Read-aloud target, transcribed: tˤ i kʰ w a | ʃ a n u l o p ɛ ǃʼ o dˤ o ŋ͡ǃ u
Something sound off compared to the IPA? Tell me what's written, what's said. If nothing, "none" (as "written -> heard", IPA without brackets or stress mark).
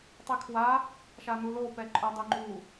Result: none